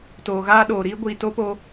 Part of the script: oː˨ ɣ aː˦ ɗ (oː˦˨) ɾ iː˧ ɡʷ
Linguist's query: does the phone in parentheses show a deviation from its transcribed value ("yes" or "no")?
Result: yes